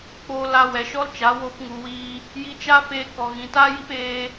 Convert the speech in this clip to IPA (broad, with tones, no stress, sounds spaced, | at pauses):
k͡p o˧ l a˧ w ɛ˨ ʃ ɔ˦ l t͡ʃ a˨˦ w o˦ p ŋ u˧ w iː˧ | j i˧ t͡ʃ a˦ f eː˧ k ɔ˨ ɣ ĩ˨ t aː˦ j i˦ p eː˦